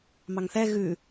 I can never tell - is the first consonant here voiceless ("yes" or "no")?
no